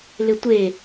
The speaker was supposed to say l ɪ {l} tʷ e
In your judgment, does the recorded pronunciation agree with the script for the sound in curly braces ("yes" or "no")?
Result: no